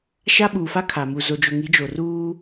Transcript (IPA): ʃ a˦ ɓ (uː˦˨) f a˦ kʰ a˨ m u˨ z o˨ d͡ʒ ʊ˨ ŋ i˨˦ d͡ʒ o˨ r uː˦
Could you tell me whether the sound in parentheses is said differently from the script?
yes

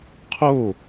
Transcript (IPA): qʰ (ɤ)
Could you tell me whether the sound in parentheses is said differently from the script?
yes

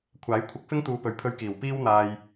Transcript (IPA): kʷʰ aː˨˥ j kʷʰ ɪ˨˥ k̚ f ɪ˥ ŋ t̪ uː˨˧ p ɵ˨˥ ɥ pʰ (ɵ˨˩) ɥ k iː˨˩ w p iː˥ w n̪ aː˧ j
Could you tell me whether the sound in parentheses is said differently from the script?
yes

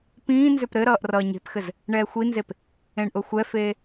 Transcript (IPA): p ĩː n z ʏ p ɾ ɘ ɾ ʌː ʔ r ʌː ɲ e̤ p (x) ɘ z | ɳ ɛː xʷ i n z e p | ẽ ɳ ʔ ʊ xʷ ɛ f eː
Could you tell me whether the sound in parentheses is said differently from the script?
no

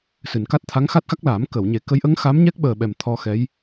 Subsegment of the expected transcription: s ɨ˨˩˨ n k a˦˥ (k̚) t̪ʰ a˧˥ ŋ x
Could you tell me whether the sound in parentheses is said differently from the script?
yes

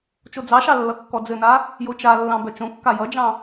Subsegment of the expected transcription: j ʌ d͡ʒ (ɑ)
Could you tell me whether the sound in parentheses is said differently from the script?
yes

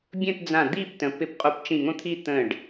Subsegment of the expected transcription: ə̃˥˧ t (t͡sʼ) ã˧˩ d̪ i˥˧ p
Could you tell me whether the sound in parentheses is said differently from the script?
yes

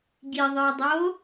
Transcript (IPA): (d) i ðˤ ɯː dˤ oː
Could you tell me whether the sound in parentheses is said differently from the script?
yes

